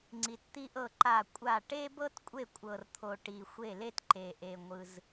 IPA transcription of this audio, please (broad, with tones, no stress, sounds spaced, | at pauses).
ŋ͡ǀ i˨ t t̪ i˥ ʔ ɤ˥˩ ǃ a˥˩ kʷʼ a˥˩ ʈ e˥ b ɤ˥ t kʷʼ e˥˩ kʷʼ ɤ˨ r t̪ʰ o˨ ʈ i˨ xʷ e˥˩ l e˥ t ǃ e˨ ʔ e˨ ŋʷ ɯ˨ z